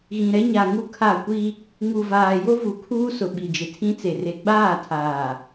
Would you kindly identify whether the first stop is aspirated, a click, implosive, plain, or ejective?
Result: aspirated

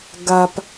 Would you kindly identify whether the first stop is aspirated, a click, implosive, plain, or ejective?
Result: plain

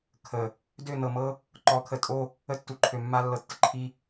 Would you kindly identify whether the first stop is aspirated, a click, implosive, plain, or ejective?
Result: aspirated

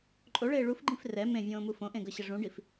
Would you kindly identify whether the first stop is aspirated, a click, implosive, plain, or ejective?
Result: click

